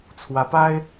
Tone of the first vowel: rising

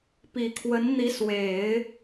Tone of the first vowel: low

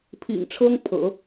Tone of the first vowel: low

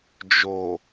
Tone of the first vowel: low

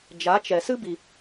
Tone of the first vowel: rising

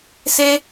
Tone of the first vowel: high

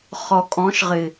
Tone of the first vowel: low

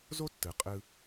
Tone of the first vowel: high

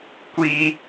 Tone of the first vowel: high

